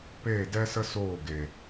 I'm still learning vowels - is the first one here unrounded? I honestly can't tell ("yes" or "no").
yes